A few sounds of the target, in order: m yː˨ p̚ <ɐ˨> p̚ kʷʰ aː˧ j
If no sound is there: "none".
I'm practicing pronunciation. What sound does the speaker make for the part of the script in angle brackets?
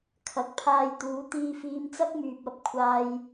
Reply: ɐ˨˥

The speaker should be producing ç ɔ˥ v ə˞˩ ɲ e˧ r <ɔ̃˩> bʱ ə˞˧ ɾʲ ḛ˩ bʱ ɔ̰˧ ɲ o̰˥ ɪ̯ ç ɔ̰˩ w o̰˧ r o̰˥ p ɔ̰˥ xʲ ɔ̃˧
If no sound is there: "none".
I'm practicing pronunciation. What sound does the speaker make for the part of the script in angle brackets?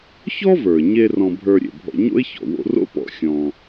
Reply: ɔ̃˧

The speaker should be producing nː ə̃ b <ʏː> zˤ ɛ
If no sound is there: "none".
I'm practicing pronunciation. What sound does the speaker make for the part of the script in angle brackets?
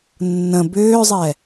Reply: ʏː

